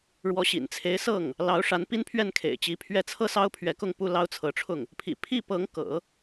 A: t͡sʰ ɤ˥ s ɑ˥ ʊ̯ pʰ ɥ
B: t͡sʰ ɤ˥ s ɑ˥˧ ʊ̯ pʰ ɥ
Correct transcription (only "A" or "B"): A